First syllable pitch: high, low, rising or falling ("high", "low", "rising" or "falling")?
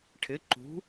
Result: rising